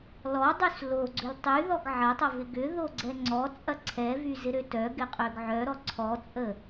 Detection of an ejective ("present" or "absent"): present